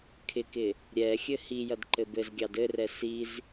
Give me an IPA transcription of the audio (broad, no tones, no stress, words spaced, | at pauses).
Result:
kʰɪkɪ | ɾʲɛxʲɘ hijɐd ǃɘbɘzɡʲɑd ɘrɛ siz